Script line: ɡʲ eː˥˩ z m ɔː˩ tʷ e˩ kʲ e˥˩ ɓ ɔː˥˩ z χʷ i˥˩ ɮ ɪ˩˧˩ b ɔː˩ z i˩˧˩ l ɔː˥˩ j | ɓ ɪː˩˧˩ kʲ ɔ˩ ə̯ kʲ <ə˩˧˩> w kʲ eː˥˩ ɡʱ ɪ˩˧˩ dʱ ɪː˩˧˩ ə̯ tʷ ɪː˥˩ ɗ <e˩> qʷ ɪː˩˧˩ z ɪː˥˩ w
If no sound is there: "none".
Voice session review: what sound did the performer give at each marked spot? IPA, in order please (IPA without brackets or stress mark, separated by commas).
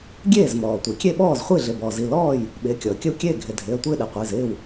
ə˥˩, e˩